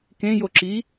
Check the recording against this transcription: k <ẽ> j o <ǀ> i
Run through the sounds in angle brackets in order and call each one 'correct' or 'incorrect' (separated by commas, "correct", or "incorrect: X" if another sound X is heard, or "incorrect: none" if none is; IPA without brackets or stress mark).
correct, incorrect: ǁ